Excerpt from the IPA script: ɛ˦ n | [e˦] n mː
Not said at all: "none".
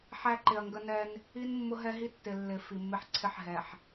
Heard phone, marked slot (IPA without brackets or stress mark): i˦